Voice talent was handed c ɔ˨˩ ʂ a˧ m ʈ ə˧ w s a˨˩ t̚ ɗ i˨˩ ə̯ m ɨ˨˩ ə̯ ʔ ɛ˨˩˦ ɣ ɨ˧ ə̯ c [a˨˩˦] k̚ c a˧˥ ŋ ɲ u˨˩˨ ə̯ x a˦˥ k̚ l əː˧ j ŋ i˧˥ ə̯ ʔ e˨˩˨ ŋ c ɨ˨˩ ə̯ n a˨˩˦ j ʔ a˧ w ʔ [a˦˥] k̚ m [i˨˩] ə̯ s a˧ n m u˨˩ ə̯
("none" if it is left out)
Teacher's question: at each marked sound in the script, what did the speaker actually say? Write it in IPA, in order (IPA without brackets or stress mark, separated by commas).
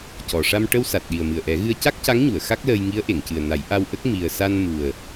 a˦˥, ə˦˥, i˨˩